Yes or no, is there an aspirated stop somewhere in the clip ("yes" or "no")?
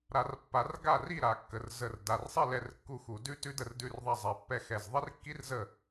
no